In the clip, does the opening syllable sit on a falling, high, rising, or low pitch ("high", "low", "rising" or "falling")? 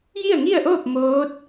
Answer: falling